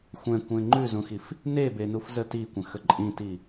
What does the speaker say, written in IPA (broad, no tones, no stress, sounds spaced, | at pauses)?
xʷ ɛ̃ kʷ ẽ ŋ͡ǃ ʉ z ũ x i f | n e b e n u f z ə t i kʷ ə̃ x ə ǃʼ ĩ t i